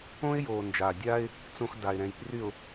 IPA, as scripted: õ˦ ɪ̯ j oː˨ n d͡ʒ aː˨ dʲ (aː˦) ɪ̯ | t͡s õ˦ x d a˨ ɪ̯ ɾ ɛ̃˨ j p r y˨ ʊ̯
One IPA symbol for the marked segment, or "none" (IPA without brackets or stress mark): aː˦